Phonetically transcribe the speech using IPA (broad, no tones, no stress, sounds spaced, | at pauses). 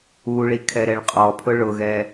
u ɭ i kʰ ɛ ɾ ɛ ɭ qʼ ɔ pʰ ʊ ɭ ʊ ɣ ɛ